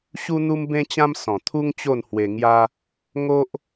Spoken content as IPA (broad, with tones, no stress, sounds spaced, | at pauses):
ɕ u˦ n̪ u˦ m b ẽ˦ t͡ɕ ã˦ m s ɔ̃˨˩ t̪ʰ u˦ ŋ t͡ɕ o˥˧ n h w e˧ ŋ j a˦ | ŋ o˦ ʔ